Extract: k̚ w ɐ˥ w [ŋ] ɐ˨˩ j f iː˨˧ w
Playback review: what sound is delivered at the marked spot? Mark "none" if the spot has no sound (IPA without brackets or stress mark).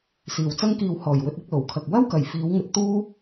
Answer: k